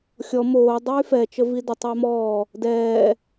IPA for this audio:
xʲ ɔ m oː dˤ yː f ɛ t͡ʃ ə v i d ə tˤ œ m ɔː | d ɛː

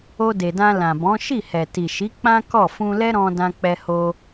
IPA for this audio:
o˧ d e˨ d ã˧ l ã˨ b ɔ̃˨˦ ʃ i˦˨ h ɛ˨ t i˨ ʃ i˨˦ k͡p ã˦ k ɔ˦˨ f ũ˧ l ɛ˦ ɾ ɔ̃˧ d ã˧ k͡p ɛ˧ h o˧

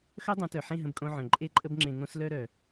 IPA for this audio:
x œ˦ dˤ õ˨˦ t œ˨ ħ ẽ˦˨ ɦ ə̃˧ b kʼ õ˧ ʕ œ̃˨ ǃʼ e˦ ǃʼ ə˦ b ŋ͡ǁ ẽ˧ ŋ õ˧ s l œ˧ ɾ œ˨

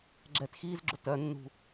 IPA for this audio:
ɡ͡ǁ ɛ t x iː z ɡ͡ǁ ʊ t œ nː ṳ

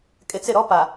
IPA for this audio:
kʼ ɪ˨ t͡s ɪ˦˨ ɾ ɔ˦ p a˨

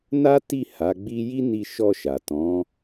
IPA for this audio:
n a˦ t i˦˨ h a˨˦ ɡ͡b i˦ j i˦ n i˧ ʃ ɔ˧ ʃ a˨ t ɔ̃˨˦

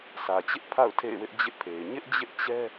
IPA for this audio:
sʰ ä˨ t͡ɕ ɪ˦ ʔ pʰ a̰˦˨ ʊ̯ tʰ ḛ˦˨ ɪ̯ w ɪ˦ ʔ d͡ʑ ɪ˦ ʔ pʰ e˨ ɪ̯ ɲ ɪ˦ ʔ d͡ʑ ɪ˦ ʔ t͡ɕ ɛ˦

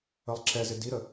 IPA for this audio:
ə lˠ ǁ ɛ z ɪ d i ɾ ə

